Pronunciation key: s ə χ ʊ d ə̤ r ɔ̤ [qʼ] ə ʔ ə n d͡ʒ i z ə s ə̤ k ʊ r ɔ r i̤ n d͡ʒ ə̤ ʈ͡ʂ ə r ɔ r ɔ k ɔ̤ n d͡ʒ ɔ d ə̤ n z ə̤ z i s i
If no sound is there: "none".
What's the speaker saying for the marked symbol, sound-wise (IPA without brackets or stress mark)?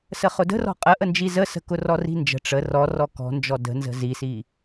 qʼ